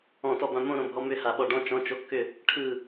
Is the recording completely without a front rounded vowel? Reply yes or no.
no